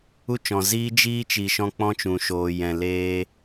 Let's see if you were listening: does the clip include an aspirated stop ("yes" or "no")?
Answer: no